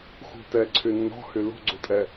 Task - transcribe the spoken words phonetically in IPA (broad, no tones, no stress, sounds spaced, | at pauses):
x ṳ t ɛ ǀʰ y nː ɔ̤ h y l ṳ ɡ͡ǀ u tʼ ɛ